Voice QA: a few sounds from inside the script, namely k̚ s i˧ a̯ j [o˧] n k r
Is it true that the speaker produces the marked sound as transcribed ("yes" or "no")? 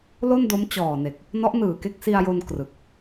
yes